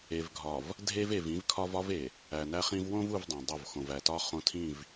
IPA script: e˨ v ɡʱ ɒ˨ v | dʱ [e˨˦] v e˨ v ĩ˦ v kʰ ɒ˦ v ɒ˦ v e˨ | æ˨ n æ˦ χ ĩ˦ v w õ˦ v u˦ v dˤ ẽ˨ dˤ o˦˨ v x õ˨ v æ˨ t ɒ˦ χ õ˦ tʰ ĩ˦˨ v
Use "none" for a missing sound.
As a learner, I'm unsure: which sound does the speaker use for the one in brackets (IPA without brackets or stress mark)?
e˦